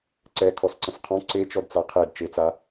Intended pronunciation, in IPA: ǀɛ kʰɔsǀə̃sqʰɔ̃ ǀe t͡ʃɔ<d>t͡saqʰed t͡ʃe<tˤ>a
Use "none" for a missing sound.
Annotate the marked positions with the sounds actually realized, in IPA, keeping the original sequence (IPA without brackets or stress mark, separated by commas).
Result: d, t͡s